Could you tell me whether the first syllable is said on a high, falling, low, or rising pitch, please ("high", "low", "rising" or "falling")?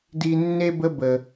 high